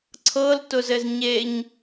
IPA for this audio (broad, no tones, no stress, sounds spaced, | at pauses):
ǀʰ ɤ l t ʊ z ɘ z ɲ e ɲ